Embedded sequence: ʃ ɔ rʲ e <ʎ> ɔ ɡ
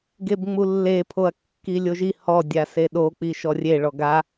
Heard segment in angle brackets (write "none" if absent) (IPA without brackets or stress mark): ɭ